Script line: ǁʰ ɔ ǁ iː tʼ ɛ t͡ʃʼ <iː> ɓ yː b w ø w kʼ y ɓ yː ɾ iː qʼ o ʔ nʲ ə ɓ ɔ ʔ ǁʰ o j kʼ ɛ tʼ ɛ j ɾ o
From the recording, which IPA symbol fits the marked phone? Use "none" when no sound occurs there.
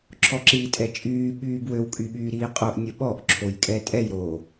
yː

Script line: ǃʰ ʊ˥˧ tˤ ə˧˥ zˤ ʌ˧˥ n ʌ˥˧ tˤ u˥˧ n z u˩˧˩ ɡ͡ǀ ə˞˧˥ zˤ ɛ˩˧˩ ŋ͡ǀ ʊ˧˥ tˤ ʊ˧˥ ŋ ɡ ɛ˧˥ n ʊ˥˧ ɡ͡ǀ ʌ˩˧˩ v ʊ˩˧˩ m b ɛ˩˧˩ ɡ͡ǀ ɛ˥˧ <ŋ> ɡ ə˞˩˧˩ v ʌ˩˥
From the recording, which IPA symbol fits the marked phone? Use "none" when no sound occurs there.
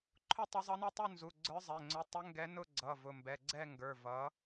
ŋ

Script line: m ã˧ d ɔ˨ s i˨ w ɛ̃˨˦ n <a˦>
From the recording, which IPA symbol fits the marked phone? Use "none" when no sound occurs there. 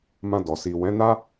a˦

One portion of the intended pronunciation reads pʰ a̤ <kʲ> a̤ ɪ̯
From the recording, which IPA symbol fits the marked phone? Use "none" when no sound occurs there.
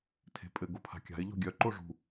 kʲ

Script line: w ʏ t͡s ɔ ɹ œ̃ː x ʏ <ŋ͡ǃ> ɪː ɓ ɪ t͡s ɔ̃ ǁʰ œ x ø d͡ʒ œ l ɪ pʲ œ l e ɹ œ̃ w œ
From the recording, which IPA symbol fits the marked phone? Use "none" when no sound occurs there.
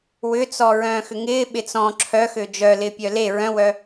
ŋ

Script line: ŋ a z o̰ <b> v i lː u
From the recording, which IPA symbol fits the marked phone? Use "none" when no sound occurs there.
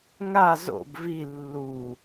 b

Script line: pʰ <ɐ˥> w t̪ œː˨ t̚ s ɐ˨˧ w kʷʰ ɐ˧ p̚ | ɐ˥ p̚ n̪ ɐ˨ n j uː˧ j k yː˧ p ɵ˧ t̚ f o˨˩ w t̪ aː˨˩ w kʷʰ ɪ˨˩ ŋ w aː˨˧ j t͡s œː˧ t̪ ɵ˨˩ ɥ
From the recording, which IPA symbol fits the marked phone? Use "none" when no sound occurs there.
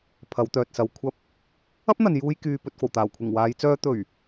ɐ˨˧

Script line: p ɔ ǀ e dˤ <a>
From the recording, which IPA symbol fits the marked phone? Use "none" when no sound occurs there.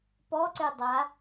a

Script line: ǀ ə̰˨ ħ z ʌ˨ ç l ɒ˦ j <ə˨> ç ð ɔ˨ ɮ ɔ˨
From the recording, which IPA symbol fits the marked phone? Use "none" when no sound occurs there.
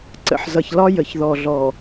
ə˨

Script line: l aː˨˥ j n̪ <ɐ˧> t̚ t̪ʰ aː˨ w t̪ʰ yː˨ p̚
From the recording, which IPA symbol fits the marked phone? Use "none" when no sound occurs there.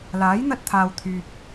ɐ˧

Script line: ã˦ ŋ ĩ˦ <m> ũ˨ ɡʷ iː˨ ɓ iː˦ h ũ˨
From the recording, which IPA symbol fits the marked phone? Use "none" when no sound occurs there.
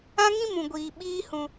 m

